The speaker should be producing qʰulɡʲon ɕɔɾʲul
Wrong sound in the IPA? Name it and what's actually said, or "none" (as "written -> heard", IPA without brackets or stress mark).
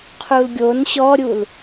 none